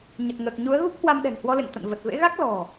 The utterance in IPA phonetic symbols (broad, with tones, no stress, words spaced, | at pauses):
ɲə˨˩t̚ŋəː˨˩k̚ ɲu˨˦ə̯ɣu˦˥p̚hwa˧m ɗɛ̤˨˩ŋhwɔ˧lḛ˧˨ŋ t̪ə̰˧˨n və˨˩t̚vḛ˧˥ɣa˦˥k̚ lɔ̤˨˩